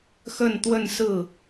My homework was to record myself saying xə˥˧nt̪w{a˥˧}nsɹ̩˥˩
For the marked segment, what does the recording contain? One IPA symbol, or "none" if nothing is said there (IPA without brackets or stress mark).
ə˥˧